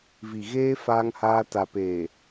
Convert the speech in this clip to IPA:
v i˨ ɣ eː˦ f aː˦ ŋ h aː˦ t a˨ p eː˨

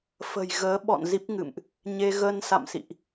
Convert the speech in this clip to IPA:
f ə̤˨˩ j ɣ əː˨˦ ɓ ɔ̰˧˨ n z i˦˥ p̚ ŋ ɨ̰˧˨ m ʔ | ɲ e˧ ɣ ə˧ n s a̰˧˨ m s ḭ˧˨ ʔ

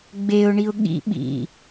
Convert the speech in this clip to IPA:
ɡ͡b e ʊ̯ ɳ i ʊ̯ ɠ ḭ ɓ ḭ

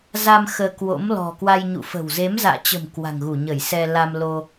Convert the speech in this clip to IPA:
z a˧ m x əː˧ k w o̰˧˥ m l ɔ̤˨˩ k w a˧ j ɲ ṵ˧˨ f ə̤˨˩ w z e˨˦ m z a̰ː˧˨ t͡ɕ ə̤˨˩ m k w a̤˨˩ ŋ ɣ u˧˩ ɲ ə˧˩ j s ɛ˧ l a˧ m l o˧

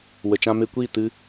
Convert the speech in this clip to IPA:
w ə˨ t͡ʃ ã˧ m e˧ kʷ iː˦˨ t ɨ˦

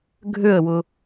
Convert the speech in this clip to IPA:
ɡʱ ø ə̯ w ʊ

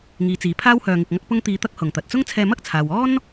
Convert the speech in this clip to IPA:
ŋ iː˨˧ t͡s iː˨˧ pʰ aː˥ w h œː˧ ŋ ɪ˧ k̚ ŋ ɐ˥ k̚ p ʊ˥ ŋ t̪ iː˧ t̪ ɐ˥ k̚ h ʊ˨ ŋ t̪ ɐ˨ t̚ t͡s ʊ˥ ŋ t͡sʰ ɛː˧ m ɐ˥ k̚ t͡sʰ aː˨ w ɔː˥ n

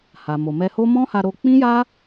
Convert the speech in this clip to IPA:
h a˨ m o˨ m ɛ˧ h o˦ m ɔ̃˦ h a˧ ɾ o˧ k͡p ĩ˦ j a˦

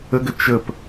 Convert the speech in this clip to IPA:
ə ɡ ə t͡ʃ ə p

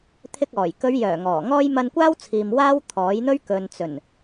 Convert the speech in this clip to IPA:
t̪ʰ ɪ˧ k̚ ɔː˨˩ j k ɵ˨˧ ɥ j œː˨˩ ŋ ɔː˨˩ ŋ ɔː˥ j m ɐ˧ n kʷ aː˥ w t͡sʰ iː˨ m w aː˥ w t̪ʰ ɔː˨˥ j n̪ ɵ˥ ɥ k ɵ˨ n t͡s ɵ˨˩ n

